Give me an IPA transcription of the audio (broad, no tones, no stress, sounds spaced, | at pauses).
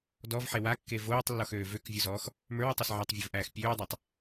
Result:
d ɔ v ħ e w a kː e v oː tˤ lː ɔ x øː v ø k vʲ o z ɔː x | m ə˞ w u tˤ u s ʕ a tˤ vʲ o v ʔ æː x pʲ øː dˤ æ tˤ